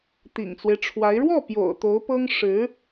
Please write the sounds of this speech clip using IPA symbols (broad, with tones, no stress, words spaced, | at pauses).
t̪ḭ˨˩ŋt͡swe˦ɪ̯ʈ͡ʂʰwa˧˥ɪ̯ ɻwɔ˥˩pjo̰˨˩ʊ̯ t̪o˧˥ʊ̯pɤ˥ŋʂɻ̩˧˥